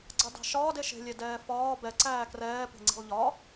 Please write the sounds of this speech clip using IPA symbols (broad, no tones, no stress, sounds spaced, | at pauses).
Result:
ɡ͡ǀ ɑ d ɑ̤ ʃ ɒː d e ʃ e̤ lʲ e d ɛː f ɒː b ɛ ǀ æː k r ɛː p e̤ ŋ͡ǀ i̤ lˠ ʎ ɒ